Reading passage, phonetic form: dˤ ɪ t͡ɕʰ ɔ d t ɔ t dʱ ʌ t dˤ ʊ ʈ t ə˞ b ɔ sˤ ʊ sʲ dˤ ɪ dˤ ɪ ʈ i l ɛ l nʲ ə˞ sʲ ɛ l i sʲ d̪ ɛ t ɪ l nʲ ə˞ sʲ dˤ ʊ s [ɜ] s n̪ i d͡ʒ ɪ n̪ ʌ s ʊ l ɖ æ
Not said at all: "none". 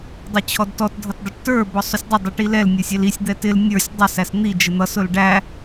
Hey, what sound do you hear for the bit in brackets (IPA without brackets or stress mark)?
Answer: æ